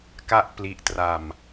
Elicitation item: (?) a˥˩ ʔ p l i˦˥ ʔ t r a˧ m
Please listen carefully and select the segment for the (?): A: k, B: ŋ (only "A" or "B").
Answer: A